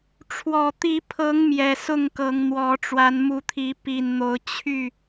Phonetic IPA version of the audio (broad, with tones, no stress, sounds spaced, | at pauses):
ʈ͡ʂʰ w ɔ˨˩ t̪ i˨˦ pʰ ɤ˨˦ ŋ m j ɛ˨˩ s ʊ˥˨ ŋ k ɤ˨˦ ŋ n̪ w ɔ˨˦ ʈ͡ʂ w a˨˦ n m u˨˦ t̪ʰ i˨˦ p i˨˩ n n̪ o˨˦ ʊ̯ t͡ɕʰ y˥˨